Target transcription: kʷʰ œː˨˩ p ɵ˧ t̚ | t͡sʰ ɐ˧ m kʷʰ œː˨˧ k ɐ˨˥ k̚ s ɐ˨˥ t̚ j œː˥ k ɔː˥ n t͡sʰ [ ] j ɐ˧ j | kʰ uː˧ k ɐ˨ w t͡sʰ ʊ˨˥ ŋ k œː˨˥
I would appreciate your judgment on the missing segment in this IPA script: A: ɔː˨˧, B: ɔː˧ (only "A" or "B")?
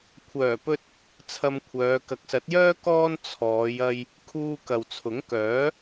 A